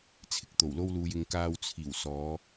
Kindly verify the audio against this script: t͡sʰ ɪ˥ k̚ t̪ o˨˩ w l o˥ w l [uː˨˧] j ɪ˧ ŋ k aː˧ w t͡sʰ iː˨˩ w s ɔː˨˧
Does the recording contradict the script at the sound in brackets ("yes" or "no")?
yes